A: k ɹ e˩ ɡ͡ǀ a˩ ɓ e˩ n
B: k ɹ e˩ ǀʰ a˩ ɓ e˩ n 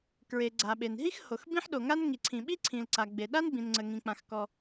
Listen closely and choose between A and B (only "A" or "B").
A